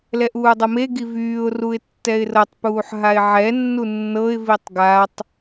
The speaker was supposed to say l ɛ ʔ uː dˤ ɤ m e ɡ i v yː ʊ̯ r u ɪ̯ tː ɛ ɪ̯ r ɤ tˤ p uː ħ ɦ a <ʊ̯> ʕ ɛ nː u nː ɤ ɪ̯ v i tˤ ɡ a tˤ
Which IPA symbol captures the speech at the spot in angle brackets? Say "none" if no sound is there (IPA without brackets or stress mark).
ɪ̯